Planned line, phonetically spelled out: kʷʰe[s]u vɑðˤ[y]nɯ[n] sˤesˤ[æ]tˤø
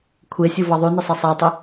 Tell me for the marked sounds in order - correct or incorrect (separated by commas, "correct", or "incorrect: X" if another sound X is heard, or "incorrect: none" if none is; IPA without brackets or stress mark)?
incorrect: sʲ, correct, incorrect: none, correct